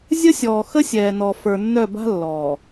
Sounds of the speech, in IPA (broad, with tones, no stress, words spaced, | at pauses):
zʲə˦sʲɔː˨ xə˦sʲɛː˨nɔ˨ fə˞˨nːœ˦˨ba̤˦ lːɔː˨